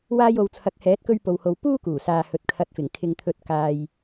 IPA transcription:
w aː˧ j o˨ w t͡sʰ ɐ˨˥ k̚ h ɛː˨˥ t̚ k ɵ˧ ɥ p o˨ w h o˨ w p uː˥ k uː˨˩ s aː˨ h ɵ˨ t̚ kʰ ɐ˨˥ t̚ f ɪ˨˩ ŋ kʰ ɪ˨ ŋ t̪ʰ ɵ˨˥ t̚ k aː˧ j

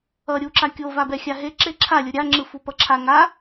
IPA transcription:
ʌ ɾʲ u ǁ a kʲ o v a b ɛ xʲ a ɦ e ǁ e ǁʰ a lʲ o ɾʲ a ŋ͡ǁ ɯ f u p ʌ ǁʰ a ŋ a

